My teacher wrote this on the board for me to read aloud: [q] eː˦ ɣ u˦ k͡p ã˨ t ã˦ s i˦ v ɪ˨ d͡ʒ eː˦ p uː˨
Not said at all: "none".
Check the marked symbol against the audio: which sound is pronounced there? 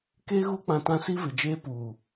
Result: k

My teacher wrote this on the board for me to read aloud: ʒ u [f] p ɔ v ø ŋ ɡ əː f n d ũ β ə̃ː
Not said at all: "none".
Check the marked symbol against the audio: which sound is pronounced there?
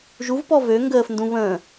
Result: v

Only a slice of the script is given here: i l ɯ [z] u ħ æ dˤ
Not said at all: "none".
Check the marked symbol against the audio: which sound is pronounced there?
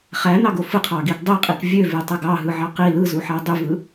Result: z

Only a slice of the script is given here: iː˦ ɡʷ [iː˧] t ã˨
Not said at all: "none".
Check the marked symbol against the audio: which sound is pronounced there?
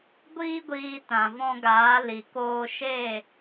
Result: iː˧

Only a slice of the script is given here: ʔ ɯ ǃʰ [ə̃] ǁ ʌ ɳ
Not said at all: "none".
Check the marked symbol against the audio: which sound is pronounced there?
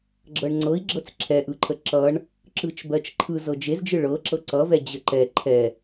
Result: ə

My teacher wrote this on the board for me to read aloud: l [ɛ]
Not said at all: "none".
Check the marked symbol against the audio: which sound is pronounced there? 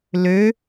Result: ø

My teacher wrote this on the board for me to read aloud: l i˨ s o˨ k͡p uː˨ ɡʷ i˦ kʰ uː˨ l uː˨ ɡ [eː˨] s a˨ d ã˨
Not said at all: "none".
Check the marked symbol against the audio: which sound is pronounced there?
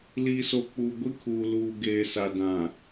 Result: eː˨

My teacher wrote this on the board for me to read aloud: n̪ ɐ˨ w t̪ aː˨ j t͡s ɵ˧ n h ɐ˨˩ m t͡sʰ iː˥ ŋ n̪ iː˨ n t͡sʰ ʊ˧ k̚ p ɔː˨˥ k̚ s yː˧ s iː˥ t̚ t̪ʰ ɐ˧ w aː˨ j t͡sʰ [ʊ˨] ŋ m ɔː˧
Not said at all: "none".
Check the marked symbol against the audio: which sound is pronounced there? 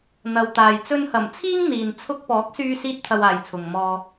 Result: ʊ˨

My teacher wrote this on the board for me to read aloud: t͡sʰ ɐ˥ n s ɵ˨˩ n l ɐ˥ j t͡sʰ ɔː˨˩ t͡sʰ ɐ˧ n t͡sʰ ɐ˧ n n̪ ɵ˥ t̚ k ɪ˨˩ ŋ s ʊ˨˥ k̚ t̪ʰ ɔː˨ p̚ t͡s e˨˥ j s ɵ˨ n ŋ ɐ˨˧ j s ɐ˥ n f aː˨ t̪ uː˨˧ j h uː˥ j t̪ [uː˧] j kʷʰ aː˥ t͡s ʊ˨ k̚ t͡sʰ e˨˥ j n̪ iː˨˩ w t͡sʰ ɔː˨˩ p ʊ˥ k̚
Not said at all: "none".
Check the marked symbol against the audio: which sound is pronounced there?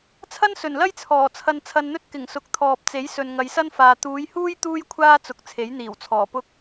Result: uː˥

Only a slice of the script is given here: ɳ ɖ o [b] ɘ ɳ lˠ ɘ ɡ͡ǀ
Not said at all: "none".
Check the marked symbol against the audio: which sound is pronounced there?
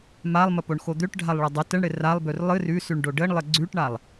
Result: ɖ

